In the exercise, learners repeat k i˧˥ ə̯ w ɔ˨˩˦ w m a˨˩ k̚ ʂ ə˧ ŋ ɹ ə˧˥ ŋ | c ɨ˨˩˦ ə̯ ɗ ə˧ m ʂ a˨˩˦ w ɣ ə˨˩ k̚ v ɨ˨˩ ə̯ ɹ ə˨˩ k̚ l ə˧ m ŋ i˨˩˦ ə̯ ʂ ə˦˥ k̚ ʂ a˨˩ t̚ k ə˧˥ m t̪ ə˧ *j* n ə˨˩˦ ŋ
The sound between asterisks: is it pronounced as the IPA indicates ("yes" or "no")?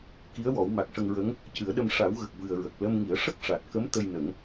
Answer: yes